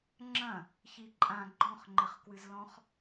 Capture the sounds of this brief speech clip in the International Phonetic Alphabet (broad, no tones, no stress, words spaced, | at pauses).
ŋ͡ǁɐ̃ | çiǃʼã ɡ͡ǃɔ̃χŋ͡ǃɘχkwɨzlɔ̃χ